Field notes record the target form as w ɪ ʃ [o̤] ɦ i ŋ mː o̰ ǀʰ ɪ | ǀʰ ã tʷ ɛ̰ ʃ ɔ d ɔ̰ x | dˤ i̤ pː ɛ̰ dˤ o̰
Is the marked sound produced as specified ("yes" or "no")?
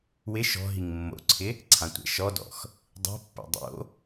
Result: no